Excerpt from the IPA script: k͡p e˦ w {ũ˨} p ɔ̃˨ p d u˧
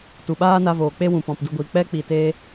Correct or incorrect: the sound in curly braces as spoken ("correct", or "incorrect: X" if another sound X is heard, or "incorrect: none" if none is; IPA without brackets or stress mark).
correct